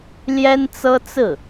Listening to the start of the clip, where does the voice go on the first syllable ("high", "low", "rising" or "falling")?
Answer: high